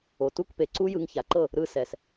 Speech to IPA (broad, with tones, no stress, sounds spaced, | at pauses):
o˨ t u˦ k p e˨ ǀ u˦ j ɯ˧ ŋ ç a˨ ǃ ɤ˦˨ | ɾ ɯ˧ s ɛ˨ s